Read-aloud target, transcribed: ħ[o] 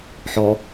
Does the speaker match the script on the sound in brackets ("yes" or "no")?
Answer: no